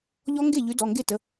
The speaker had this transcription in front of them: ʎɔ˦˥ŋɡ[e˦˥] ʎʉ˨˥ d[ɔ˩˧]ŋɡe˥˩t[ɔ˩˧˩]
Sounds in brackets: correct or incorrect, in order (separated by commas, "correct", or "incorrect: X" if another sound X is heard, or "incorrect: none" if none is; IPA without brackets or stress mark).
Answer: incorrect: e˥˩, incorrect: ɔ˩˧˩, incorrect: ə˩˧˩